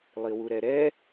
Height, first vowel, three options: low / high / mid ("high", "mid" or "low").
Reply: high